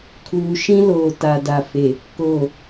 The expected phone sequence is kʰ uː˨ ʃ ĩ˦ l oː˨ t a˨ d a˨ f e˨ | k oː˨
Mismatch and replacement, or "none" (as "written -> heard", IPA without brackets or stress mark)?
none